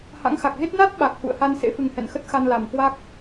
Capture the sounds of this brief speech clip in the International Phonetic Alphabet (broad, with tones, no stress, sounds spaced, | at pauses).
h a̰˧˥ ŋ x a˨˩ k̚ ɣ e˦˥ t̚ n a˦˥ t̚ ɓ a˨˩ k̚ h ṵ˧˨ ə̯ h a˧ n s ḛ˧˥ f ɨ˨˩ ŋ h ɛ̰˧˨ n x ə˦˥ t̚ x a˧ n l a˨˩ m k w a˦˥ k̚